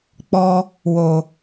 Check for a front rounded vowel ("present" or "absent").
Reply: absent